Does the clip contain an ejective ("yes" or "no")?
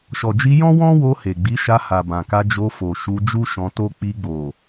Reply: no